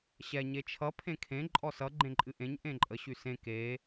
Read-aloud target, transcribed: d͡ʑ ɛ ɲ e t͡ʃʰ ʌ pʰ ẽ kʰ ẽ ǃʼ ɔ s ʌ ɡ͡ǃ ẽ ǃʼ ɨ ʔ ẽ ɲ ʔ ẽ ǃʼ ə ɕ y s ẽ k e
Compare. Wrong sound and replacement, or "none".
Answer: d͡ʑ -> ɕ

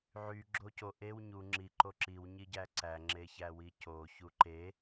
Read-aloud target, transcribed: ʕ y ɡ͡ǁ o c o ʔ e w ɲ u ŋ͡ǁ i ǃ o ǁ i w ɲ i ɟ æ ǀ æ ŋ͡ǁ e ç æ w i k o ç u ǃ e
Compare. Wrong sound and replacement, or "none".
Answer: k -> c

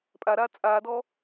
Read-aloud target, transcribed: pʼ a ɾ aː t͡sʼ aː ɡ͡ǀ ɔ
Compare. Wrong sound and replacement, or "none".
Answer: ɡ͡ǀ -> d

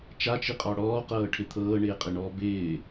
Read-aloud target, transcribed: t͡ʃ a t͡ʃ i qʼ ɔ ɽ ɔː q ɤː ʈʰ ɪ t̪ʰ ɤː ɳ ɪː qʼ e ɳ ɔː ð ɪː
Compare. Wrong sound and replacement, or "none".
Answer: ð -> b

